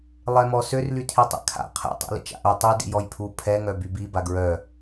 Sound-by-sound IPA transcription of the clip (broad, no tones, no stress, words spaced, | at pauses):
lˠɛmɔsør lytʰitˤḛkʰa̰ qʰɛ̰ tˤḭlḭt͡ʃa̰ʔo tˤy dḭjɔjpʰu pʰɛ ŋœbybi baɡɹœ